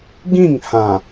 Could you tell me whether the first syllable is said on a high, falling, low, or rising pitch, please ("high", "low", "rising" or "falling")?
falling